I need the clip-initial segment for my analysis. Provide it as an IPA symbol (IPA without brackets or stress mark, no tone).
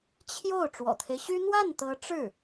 t͡ɕʰ